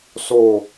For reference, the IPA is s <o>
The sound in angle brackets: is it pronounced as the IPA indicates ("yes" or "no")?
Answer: yes